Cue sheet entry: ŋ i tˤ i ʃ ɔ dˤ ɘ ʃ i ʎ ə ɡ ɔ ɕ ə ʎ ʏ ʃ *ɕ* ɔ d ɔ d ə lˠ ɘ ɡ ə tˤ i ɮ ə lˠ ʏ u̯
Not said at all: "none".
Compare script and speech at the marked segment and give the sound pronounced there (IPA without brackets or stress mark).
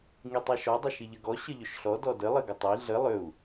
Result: ɬ